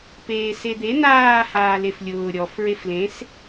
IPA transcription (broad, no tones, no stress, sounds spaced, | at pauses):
p eː s e d̪ e n̪ aː h aː l e f lʲ ʊː ɾʲ ɔ f ɹ e f l ẽ s